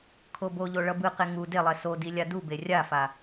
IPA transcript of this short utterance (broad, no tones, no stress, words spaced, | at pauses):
kʰoboʎo ɭʌbɯqe ŋu delˠɛ sodi lʲadube rʲafa